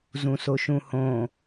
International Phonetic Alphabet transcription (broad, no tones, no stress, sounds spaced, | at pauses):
z ũ s o ʃ ũ h õː